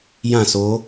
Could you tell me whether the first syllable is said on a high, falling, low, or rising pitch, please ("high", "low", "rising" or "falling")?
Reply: falling